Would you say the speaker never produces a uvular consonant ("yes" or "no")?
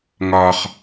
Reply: no